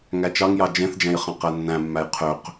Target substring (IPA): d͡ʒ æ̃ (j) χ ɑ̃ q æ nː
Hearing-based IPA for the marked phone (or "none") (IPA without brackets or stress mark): j